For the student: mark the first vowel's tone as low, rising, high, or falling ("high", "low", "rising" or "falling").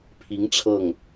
rising